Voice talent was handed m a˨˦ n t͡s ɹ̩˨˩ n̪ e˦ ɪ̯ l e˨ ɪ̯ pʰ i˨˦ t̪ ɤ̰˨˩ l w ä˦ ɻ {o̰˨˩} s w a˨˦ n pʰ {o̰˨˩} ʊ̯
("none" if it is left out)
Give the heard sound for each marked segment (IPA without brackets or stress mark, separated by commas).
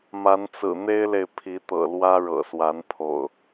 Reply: ɤ̰˨˩, o̰˨˩